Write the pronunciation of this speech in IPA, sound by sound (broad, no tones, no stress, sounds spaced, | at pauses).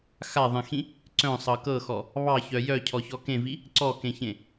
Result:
x a ðˤ ẽ x ĩ | ǀ œ̃ sˤ ɤ k ɤ x ɔ | β ɑ ç œ j œ cʰ ɔ ç ɔ k ẽ v i | ǀ ɔ k ẽ ç ẽ